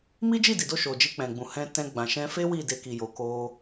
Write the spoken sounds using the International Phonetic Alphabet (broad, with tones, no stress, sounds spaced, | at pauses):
m i˦ d͡ʒ i˦˨ d i˨ d o˧ ʃ o˨ d͡ʒ i˧ k͡p ɛ̃˨ ɡ͡b ũ˨ h ɛ̃˧ t ɛ̃˧ ɡ͡b ã˨ ʃ ɛ̃˧ f e˦ w i˦˨ d e˧ k i˨ j o˨ k o˧